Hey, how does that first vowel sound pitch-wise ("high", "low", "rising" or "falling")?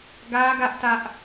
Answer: high